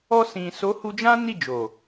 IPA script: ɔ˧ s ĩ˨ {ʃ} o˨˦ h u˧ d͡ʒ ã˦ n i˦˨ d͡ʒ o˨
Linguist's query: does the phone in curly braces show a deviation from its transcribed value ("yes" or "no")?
yes